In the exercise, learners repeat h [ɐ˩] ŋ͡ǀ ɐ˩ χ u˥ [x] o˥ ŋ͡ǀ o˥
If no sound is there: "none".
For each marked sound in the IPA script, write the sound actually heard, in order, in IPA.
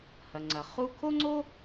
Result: ɐ˩, kʰ

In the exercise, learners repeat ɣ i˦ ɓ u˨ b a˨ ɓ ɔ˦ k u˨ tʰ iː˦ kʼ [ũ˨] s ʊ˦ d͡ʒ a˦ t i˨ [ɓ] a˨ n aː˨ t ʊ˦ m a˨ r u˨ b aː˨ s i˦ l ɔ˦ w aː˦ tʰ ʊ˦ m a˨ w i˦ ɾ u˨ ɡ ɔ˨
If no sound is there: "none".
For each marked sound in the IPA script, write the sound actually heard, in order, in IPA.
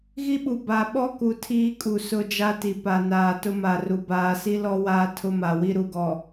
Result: u˨, p

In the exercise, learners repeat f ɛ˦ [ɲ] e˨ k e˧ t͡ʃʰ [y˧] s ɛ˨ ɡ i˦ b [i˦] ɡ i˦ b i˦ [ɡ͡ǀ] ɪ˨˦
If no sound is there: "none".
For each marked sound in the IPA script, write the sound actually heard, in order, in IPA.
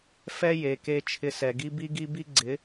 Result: j, ɪ˧, i˦, ɡ͡ǀ

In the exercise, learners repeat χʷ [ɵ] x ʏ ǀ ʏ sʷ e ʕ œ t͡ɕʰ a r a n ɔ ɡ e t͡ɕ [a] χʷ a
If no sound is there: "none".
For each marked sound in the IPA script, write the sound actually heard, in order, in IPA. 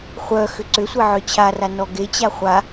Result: œ, a

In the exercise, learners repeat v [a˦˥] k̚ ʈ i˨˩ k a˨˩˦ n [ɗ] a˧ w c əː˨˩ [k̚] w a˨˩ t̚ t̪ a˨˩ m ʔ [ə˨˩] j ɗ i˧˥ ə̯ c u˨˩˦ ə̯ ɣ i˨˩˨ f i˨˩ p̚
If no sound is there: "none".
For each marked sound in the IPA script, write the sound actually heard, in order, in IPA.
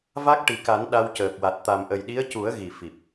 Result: a˦˥, ɗ, k̚, ə˨˩

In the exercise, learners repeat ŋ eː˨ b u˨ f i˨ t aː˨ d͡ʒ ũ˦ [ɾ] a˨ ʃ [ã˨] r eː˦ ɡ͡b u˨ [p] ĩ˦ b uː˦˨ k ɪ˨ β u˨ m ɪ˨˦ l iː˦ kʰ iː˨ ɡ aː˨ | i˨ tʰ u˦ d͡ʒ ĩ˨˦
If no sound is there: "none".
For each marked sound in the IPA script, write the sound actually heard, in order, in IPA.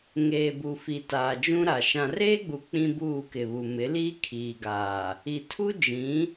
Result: ɾ, ã˨, k͡p

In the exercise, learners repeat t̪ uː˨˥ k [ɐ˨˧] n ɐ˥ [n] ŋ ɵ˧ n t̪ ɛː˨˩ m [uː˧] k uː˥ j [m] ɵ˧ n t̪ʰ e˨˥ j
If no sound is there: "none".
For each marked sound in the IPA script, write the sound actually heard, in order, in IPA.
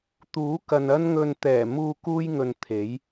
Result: ɐ˨, n, uː˧, ŋ

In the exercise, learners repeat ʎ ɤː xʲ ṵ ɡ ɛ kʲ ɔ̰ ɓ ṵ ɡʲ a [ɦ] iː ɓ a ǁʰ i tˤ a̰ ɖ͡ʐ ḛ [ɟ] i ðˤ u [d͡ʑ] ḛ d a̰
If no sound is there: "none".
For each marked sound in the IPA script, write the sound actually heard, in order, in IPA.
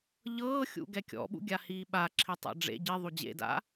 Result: h, ɟ, d͡ʑ

